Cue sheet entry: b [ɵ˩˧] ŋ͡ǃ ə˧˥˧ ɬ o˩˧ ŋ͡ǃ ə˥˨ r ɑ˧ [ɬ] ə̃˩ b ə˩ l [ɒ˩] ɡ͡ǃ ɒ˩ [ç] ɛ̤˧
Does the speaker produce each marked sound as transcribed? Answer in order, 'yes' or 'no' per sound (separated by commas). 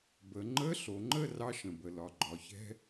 no, no, yes, yes